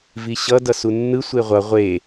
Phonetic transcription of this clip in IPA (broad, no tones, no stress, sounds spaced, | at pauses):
v i ɕ ʌ d ʌ s u nː ɯ sʷ e ʁʷ ʌ ʁʷ e